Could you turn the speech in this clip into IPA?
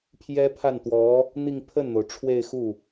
pʰ j ɛ˥ pʰ a˥˩ n t̪ w ɔ˧˥ | n̪ i˥˧ ŋ pʰ ə˥˩ n n̪ o˩ ʊ̯ ʈ͡ʂʰ w e˥˧ ɪ̯ x u˥˩

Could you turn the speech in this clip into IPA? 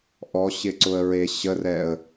ʔ ɔ ɕ ɪ ǀ ʊ ə̯ ɹ e ɕ ə r ɛ ə̯

